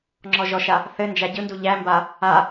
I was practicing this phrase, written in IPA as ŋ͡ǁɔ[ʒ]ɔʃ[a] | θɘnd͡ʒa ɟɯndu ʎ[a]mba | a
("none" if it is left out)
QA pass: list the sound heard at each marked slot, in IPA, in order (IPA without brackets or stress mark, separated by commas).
ʒ, a, æ